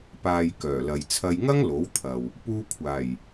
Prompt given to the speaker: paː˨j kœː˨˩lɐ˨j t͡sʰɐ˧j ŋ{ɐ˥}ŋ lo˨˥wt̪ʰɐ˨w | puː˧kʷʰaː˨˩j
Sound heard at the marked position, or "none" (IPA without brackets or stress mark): ɐ˥